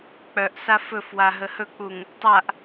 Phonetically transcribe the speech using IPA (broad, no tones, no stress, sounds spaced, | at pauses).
k͡p œ ʔ s a f ɵ f w a ɦ ə h ɵ k͡p u ŋ | tˤ a ʔ